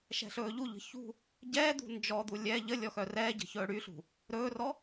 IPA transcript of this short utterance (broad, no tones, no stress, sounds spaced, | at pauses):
ʃ ɛ̤ ɬ ɵː ʎ u ʎ ə̤ ç ṳ | ɟ ɛː d̪ ṳ n d͡ʒ ɔ d̪ u lʲ ɛ ʎ ə lʲ ɔ x œ r ɛː ɟ ə̤ ç ɵː ɽ y ɬ ṳ | ɾ ɵː r ɔ